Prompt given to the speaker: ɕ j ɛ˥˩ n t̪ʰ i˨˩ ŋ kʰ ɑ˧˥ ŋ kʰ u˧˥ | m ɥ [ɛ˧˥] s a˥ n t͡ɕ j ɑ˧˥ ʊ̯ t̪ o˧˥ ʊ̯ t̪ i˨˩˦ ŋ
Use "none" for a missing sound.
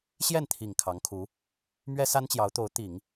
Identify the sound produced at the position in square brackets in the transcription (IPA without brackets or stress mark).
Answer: ɛ˥